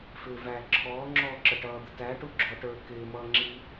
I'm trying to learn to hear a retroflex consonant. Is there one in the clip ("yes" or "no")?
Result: yes